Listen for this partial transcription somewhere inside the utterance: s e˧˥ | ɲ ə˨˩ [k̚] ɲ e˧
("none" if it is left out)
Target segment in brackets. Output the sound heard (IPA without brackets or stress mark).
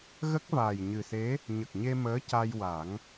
k̚